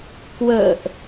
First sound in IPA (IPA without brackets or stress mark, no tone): k